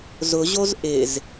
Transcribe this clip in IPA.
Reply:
zʊʑoz ʔɪz

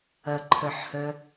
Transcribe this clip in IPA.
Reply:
ɐǃʰœħhœ

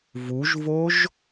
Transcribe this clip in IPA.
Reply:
vuʒvoʒ

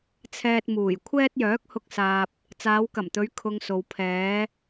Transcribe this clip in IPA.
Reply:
t͡sʰɛː˨t̚ muː˨˩j kʷʰɛː˥t̚jœː˨˥k̚hʊ˧k̚saː˨p̚ | t͡saː˨˧wkɐ˨˩mt̪ɵ˨˧ɥ kʰʊ˧ŋso˨w pʰɛː˨˧

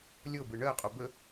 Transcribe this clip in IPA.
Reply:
lʲɤ bɯɳɜqʼo bə

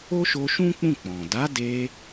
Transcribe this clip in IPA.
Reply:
o˦ʃo˧ʃũ˦k͡pũ˦˨ k͡pɔ̃˨ da˨˦de˧

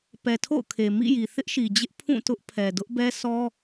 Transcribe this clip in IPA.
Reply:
pɛ˨tʰo̰˦˨ʊ̯kʰe˨ mḭ˦˨ji˨ θɪ˦ʔʃi˨d͡ʑɪ˦ʔ pʰũ˦˨tʊ˦ʔpʰɛ˨ dʊ˦ʔbɛ˦sʰɔ˦

